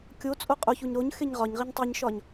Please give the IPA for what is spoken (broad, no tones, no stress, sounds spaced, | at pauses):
kʲ o t͡sʼ o qʼ o ç u ɲ ɾ o ɲ x e ɲ ʁ ɒ ɲ ʁ i ɲ tˤ e ɲ ʃ ɒ ɲ